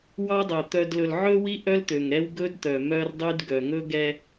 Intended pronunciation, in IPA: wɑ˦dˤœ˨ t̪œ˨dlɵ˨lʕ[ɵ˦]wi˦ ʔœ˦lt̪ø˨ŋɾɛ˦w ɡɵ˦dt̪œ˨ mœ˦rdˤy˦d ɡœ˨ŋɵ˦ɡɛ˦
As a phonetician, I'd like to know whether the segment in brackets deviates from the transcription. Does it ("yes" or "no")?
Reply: no